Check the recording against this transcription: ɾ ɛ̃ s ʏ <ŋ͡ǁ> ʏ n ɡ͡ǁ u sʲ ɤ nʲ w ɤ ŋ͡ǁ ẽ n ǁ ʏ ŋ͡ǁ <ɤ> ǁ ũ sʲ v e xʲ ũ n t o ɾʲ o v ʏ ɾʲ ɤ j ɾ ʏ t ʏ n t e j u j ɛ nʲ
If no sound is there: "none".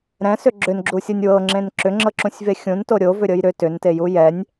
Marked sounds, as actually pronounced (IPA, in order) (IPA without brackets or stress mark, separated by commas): ɡ͡ǁ, ɤ